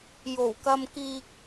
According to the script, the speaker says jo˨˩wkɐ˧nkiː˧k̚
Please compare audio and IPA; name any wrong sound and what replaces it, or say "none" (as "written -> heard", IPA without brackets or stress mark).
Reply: n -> m